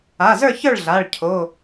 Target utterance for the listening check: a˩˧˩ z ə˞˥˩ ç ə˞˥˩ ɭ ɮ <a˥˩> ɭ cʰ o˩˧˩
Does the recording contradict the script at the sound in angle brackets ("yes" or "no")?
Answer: yes